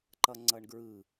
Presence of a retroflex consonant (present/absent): present